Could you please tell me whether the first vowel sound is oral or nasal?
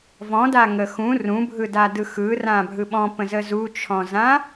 nasal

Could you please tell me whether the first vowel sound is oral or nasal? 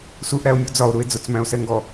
oral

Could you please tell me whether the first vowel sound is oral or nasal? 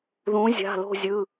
nasal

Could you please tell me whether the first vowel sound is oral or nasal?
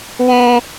nasal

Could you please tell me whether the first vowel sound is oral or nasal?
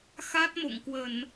oral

